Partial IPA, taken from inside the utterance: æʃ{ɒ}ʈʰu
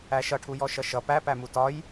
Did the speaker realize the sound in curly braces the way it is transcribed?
no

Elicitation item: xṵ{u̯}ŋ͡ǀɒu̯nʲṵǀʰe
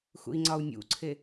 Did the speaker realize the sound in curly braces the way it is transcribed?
no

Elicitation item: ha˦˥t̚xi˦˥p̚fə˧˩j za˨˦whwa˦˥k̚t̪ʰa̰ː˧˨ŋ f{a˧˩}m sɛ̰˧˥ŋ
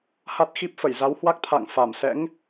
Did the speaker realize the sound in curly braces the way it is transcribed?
yes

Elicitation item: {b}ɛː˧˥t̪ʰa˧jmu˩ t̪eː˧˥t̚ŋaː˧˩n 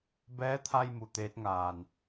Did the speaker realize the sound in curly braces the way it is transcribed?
yes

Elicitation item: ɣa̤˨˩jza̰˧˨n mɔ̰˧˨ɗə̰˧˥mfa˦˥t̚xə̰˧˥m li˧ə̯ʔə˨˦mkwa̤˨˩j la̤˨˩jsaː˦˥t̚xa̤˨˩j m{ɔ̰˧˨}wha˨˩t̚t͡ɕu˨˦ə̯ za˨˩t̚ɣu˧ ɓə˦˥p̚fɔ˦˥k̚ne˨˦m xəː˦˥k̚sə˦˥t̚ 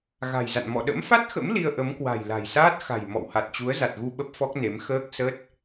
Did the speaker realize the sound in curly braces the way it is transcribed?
yes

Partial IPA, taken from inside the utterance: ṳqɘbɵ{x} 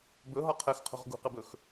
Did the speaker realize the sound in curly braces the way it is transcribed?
yes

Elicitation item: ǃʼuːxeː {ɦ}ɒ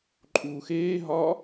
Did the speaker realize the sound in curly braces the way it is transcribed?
yes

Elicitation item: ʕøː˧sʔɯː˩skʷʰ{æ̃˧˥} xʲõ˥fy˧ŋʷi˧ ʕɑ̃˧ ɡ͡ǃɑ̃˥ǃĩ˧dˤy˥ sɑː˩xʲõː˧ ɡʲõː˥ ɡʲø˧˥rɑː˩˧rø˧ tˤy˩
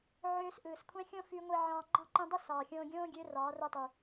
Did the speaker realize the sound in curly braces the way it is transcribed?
no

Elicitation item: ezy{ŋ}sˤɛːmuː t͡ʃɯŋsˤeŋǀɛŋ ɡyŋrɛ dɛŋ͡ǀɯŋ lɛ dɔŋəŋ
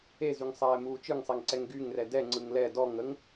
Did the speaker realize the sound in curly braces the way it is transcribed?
yes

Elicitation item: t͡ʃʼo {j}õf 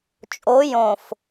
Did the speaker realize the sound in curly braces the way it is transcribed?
yes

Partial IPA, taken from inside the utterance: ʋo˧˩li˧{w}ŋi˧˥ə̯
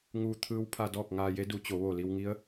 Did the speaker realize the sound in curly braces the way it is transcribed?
yes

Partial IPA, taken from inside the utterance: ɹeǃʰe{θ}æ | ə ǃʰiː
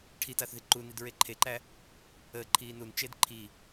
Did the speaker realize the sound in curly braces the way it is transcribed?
no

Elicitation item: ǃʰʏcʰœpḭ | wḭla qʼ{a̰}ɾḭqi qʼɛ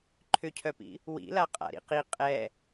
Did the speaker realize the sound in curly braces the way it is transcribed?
yes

